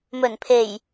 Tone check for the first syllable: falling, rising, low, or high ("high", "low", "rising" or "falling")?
low